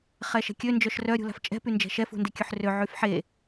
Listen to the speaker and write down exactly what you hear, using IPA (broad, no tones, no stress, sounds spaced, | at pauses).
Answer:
χ ɛ ʃ ɛ̤ kʲ ø n d͡ʒ œ ʃ r œ ɾʲ ṳ l a̤ f t͡ʃʼ ɛ̤ p y n d͡ʒ ɛ̤ ʃ ɛ f ṳ n d e kʲ ø ħ r ø ʕ y f ħ e